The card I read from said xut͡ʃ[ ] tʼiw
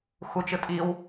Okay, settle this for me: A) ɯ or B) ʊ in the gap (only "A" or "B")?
A